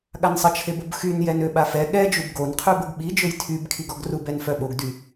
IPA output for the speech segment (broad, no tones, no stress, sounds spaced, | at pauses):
ɠ a n sˤ ə t͡ʃʰ e b o b x y n j ɛ n ø ɓ a f ɛ ɠ ɛ d͡ʒ u b ɡ o n qʰ y b ə ɡ ɓ i d͡ʒ ø j tʰ y b kʰ i ɡ ɔ ɡ r u b ɛ n f œ ɓ o ɡ d y